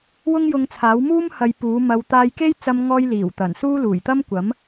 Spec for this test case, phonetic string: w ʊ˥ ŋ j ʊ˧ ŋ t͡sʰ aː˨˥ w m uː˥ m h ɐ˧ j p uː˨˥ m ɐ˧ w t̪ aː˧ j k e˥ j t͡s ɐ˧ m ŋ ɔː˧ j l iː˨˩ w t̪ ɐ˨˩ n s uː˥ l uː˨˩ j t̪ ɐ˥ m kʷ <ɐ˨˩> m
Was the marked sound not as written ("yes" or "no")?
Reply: yes